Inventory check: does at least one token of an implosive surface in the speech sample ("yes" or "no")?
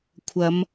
no